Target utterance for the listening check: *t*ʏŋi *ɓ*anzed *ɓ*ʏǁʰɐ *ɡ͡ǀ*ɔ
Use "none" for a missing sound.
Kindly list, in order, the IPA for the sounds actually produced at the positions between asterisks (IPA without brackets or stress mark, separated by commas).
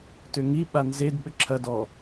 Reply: t, ɓ, ɓ, d